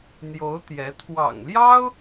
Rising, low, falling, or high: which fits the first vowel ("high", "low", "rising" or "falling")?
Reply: rising